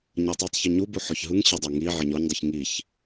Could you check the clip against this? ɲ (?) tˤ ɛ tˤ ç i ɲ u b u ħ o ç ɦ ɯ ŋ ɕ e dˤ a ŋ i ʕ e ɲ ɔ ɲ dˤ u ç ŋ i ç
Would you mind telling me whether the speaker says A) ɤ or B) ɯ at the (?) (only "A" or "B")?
A